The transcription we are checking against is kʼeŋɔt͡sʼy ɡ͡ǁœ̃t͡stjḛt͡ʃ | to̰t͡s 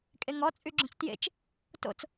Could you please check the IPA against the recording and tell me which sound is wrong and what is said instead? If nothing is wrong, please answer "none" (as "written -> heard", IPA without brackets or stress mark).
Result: none